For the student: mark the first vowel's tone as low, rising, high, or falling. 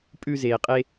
high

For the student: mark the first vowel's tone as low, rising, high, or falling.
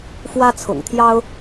high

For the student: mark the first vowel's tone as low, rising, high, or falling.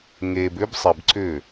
low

